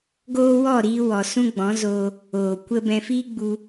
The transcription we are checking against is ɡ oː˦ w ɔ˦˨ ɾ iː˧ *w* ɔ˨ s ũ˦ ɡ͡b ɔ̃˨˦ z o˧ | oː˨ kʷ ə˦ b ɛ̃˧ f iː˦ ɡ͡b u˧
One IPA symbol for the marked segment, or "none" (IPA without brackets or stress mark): w